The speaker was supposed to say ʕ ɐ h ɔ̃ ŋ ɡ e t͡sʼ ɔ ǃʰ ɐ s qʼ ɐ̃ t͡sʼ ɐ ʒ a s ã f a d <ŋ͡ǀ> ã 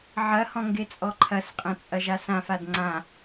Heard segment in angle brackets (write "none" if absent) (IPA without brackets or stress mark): ŋ͡ǀ